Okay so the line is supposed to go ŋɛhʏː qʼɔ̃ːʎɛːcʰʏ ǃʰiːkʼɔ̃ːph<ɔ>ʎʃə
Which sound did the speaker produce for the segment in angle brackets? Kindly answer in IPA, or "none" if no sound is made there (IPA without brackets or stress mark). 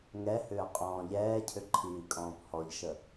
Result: ɔ